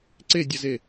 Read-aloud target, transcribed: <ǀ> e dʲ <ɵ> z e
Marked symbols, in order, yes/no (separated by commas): yes, no